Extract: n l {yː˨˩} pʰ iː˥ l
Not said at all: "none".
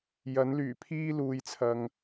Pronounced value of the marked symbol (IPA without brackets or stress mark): yː˨˩